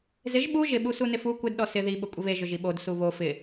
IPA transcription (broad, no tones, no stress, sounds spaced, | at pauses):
z ɪ ʒ ɓ u ʒ ɪ ɓ u s u n ɪ f u kʷ ɪ d ɗ ɔ s ɪ ð i ɓ ʊ kʷʼ ɪ β e ʒ ʊ ʒ i ɓ o d s u β o f ɪ